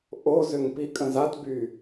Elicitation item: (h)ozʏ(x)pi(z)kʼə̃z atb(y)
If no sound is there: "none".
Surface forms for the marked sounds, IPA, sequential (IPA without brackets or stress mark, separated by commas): ʔ, ŋ, none, y